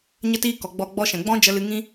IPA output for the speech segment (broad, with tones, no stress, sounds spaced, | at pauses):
ɲ ə˧ t iː˧ k ɔ˨ ɡ͡b ɔ˧ ɡ͡b ɔ˧ ʃ ɛ̃˨ ɡ͡b ɔ̃˦ d͡ʒ ə˦ l ɨ˦ ŋ ĩ˦